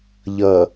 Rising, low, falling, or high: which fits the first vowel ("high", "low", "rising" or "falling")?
low